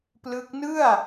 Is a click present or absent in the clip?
absent